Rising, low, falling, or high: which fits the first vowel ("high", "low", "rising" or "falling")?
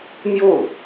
falling